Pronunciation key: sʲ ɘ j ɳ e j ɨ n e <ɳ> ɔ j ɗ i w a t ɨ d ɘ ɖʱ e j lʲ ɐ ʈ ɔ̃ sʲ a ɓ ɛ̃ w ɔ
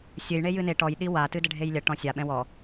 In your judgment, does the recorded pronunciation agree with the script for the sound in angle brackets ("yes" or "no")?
no